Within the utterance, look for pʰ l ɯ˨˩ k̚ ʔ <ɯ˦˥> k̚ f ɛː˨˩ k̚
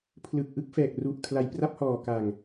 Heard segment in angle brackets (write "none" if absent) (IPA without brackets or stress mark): ɯ˦˥